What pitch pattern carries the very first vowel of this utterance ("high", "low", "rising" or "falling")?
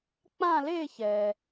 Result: falling